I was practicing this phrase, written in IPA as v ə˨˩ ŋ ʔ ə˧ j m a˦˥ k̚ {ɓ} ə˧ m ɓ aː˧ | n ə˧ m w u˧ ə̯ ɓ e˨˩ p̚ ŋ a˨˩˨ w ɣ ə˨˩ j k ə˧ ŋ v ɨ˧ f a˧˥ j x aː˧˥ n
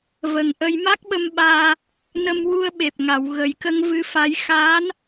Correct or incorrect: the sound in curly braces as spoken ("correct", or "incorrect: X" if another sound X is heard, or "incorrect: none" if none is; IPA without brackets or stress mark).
correct